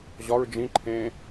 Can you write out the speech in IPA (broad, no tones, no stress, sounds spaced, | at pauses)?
ʑ ɒ ɹ d͡ʒ ĩ ǃʰ ẽː